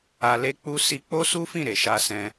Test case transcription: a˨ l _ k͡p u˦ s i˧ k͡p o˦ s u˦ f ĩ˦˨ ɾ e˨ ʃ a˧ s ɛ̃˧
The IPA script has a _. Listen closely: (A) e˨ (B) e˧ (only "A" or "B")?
B